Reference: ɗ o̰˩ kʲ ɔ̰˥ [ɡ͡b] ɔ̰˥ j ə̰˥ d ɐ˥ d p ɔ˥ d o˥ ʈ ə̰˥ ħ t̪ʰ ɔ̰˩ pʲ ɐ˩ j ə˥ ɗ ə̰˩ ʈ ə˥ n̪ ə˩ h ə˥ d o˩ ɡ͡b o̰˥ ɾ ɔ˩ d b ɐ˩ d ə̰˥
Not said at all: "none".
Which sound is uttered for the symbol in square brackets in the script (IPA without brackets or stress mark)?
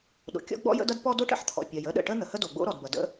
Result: ɡ͡b